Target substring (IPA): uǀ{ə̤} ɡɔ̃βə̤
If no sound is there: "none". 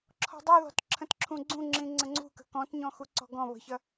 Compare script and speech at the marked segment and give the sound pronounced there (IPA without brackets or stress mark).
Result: ɔ̤